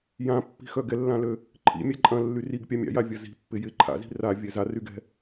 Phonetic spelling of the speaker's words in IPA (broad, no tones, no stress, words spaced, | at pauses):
jãpːi̤xœ ɡɛlːãlø | ǃʰḭmʲɛ ǃʼɐ̃lːy riɡpʲa mʲa̰javʲɐ zi̤pːɪ jɪ ǃʰa̰zi̤ ravʲɛ zaryɡɛ̤